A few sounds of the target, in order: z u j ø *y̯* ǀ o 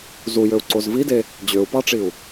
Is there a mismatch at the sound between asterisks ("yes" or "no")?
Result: yes